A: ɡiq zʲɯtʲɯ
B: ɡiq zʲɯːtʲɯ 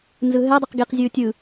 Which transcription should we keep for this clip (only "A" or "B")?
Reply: B